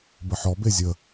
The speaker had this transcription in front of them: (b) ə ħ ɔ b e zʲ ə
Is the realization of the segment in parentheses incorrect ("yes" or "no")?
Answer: no